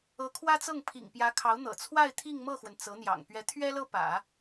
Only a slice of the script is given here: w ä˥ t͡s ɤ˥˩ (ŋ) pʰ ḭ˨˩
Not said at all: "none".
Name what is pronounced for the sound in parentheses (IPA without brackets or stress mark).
ŋ